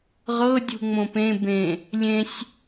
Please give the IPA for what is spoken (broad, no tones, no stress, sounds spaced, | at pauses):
ʁ ɤ dʲ ṳ ŋ͡m õ p ẽ b ẽ | lʲ ẽ sʲ